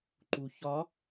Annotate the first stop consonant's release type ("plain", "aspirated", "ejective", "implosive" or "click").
click